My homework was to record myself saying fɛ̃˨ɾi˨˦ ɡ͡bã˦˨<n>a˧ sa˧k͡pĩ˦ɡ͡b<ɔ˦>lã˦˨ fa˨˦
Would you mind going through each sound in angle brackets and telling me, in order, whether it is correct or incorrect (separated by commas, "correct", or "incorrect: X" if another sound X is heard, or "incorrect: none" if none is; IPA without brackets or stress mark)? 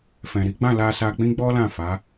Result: incorrect: l, correct